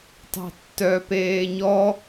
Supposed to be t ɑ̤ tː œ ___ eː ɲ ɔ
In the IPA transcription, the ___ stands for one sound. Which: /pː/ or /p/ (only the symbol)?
p